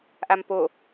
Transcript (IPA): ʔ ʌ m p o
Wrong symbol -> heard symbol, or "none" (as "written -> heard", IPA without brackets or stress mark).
ʌ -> a